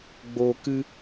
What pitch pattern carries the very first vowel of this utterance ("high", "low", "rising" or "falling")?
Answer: low